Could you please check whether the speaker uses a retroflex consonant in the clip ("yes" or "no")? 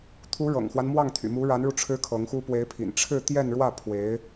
yes